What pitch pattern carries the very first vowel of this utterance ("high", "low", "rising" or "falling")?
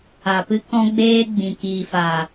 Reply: low